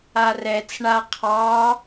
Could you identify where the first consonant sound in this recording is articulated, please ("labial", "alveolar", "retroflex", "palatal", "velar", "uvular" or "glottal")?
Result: alveolar